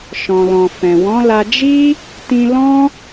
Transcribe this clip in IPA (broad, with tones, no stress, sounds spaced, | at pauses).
ʃ ɔ̃˨ l ɔ̃˨ f ɛ̃˨ w ɔ̃˨˦ l a˧ d͡ʒ i˦ | t ĩ˧ l ɔ̃˦